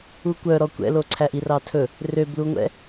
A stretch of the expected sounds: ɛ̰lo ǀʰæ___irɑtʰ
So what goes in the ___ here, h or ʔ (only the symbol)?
ʔ